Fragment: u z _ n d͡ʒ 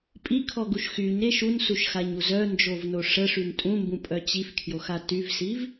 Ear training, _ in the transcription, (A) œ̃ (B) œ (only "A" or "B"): B